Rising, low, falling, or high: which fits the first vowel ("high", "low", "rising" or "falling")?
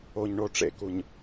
low